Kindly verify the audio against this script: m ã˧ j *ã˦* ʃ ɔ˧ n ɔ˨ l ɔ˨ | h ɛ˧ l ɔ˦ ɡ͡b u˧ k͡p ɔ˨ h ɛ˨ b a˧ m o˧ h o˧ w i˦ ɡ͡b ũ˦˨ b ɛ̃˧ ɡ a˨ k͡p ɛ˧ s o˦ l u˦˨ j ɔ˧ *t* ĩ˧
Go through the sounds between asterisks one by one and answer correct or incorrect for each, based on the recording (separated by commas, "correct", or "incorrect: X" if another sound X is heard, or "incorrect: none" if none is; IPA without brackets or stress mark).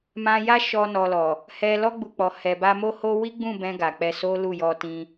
incorrect: a˦, correct